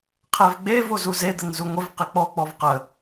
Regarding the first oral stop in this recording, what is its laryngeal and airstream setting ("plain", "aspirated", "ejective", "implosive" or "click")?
aspirated